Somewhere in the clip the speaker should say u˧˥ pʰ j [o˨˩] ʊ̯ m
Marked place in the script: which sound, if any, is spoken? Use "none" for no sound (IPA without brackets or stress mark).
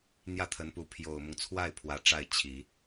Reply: o˨˩